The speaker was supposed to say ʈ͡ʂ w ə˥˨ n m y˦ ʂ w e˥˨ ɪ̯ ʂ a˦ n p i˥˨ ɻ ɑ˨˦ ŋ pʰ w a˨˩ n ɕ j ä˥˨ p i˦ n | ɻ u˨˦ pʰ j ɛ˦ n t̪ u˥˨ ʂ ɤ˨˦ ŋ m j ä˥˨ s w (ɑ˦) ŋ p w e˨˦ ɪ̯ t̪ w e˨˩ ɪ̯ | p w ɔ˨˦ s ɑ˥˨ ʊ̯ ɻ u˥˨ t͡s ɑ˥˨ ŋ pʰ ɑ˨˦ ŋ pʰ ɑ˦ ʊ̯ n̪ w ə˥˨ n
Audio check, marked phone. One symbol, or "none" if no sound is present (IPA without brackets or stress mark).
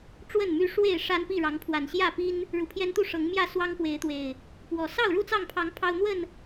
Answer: ɑ˦